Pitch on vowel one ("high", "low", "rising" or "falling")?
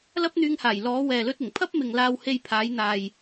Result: high